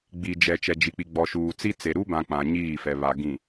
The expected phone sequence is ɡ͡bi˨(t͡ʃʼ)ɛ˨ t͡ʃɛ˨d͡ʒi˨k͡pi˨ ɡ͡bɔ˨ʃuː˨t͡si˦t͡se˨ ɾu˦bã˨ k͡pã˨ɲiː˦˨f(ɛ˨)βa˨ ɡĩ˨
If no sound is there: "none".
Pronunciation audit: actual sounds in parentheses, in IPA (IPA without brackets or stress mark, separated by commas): d͡ʒ, ɛ˨